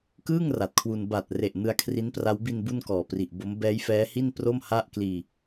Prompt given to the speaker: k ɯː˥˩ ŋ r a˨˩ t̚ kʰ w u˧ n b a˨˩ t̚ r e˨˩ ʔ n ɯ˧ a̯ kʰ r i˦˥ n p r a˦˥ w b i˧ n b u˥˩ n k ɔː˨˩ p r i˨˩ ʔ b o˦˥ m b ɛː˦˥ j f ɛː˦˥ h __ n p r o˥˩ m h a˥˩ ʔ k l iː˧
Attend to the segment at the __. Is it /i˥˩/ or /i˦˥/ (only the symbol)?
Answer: i˥˩